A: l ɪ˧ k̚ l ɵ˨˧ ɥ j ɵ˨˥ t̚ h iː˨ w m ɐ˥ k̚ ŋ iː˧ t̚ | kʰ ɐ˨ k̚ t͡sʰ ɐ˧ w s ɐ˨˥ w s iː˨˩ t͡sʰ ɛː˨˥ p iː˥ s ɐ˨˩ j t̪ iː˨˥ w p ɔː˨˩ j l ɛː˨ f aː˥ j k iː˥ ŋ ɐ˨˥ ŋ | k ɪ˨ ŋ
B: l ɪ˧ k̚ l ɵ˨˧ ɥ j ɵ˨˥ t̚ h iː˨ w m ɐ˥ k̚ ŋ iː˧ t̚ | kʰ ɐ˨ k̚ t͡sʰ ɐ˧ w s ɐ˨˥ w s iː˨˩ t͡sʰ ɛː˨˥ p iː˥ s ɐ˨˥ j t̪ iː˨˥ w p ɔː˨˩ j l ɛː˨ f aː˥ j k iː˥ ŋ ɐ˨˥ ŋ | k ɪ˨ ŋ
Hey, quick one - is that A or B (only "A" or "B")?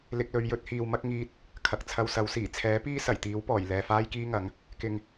A